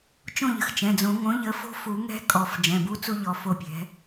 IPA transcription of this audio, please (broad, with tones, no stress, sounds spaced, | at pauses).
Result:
t͡ʃ õ˦˨ ʎ ə̤˩ x t͡ʃ ɛ̃˩˧˩ d͡z õ˨˩˦ ŋ õ˩˥ ʎ ə˩˥ f o̤˦˥ f u˨˩˦ ŋ ɛ̤˦˥ kʼ ɔ˨˩˦ f d͡ʒ ɛ̃˩˧˩ b u˦˥ t͡s u˦˥ ʎ ɔ˩˧˩ f o˦˨ pʲ ɛ̤˩˥